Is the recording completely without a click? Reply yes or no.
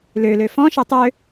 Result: yes